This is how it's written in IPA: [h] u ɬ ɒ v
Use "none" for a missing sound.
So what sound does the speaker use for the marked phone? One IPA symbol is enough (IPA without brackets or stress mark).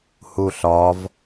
h